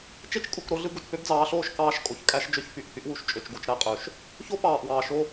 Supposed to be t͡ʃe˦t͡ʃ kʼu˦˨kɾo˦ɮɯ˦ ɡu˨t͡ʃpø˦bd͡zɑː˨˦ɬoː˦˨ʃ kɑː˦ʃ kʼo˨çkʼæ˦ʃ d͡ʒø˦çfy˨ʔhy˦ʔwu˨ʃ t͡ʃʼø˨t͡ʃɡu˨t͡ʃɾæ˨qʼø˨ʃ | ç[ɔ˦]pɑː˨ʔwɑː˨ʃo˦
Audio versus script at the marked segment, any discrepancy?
yes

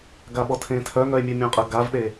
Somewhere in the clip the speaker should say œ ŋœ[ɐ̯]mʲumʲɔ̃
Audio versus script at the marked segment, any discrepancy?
yes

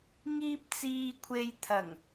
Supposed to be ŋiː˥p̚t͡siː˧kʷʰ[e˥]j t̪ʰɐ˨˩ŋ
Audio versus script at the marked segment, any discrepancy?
yes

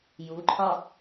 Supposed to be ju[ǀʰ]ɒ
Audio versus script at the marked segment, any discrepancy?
yes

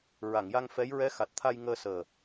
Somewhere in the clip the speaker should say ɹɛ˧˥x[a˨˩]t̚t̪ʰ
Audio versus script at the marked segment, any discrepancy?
no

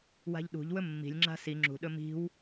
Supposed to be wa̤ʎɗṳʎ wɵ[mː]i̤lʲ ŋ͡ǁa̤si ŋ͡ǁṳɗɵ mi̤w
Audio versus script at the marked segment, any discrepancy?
no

